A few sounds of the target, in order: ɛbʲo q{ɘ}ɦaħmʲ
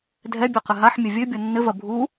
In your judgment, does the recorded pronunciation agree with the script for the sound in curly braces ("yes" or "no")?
yes